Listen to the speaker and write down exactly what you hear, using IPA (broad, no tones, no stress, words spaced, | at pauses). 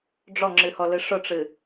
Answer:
ɖ͡ʐɔŋ͡ǁɨhɔlɨ ʂʊʈ͡ʂɨ